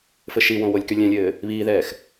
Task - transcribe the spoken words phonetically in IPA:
fɘʃiwõ wolʲkylʲɛ̃lʲɘː | βiːðɛːx

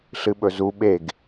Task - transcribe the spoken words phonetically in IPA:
ɬɨɓɵzu ɓeɡ

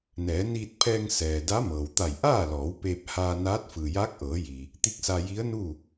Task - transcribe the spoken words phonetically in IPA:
nɛː˩˧niː˧t̚pʰɛː˧ŋ sɛː˩ da˧˥mɤː˩wt̪a˧˩j ʔaː˥˨lɔː˩˧w peː˧p̚haː˧ naː˧˥t̚ fɯː˩jaː˧˥k̚ʔɤː˩˧jiː˩ | t̪i˧˥k̚sa˧ ji˧˥ə̯nuː˥˨

